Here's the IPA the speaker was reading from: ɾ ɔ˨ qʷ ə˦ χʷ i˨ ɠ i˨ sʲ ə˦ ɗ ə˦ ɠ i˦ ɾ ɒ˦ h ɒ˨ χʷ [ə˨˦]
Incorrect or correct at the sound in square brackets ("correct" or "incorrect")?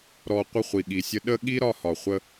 incorrect